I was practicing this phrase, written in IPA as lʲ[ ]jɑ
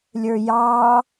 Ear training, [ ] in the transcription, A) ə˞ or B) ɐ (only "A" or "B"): A